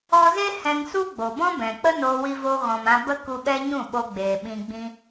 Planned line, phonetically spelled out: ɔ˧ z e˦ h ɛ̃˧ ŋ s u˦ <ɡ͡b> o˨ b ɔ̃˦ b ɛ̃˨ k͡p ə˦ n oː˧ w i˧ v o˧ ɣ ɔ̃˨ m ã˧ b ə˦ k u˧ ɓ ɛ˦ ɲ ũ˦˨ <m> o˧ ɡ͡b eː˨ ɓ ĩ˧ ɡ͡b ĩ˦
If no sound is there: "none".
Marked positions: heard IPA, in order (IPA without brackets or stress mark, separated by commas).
ɡ͡b, ɓ